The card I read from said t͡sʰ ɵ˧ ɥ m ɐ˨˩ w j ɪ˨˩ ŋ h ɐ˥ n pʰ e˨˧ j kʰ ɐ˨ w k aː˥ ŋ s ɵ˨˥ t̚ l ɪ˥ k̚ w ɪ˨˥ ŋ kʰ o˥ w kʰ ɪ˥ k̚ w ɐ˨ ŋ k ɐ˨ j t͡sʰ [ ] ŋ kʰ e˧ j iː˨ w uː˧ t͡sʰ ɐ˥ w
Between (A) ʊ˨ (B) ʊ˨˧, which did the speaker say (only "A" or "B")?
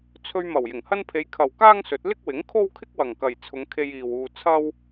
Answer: B